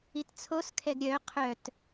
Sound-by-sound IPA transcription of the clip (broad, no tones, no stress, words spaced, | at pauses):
itt͡sʰos kʰɛɡɾʲœ qʰœt